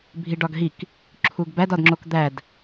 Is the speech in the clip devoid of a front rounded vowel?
yes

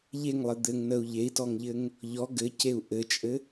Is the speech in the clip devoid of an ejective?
no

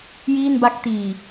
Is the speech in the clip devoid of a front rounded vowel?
yes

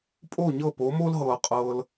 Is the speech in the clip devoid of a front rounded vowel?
yes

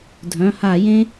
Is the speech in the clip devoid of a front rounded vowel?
no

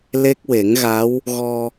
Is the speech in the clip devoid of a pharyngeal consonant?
yes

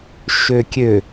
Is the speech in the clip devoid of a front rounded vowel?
no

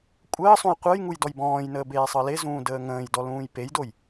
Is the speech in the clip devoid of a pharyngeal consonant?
yes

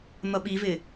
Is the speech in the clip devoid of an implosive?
no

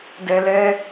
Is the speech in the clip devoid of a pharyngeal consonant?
yes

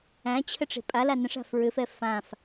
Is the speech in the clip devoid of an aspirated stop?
no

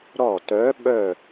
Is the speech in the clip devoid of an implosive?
no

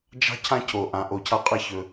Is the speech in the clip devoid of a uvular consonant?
no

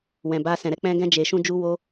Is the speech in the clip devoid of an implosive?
yes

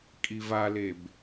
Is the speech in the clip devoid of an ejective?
no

